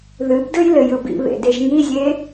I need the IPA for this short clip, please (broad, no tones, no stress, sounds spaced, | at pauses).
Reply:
ð ɨ b d ɯ j l ɘ j ɯ b ḭ β ḛ d e ʒ ŋ i zʲ e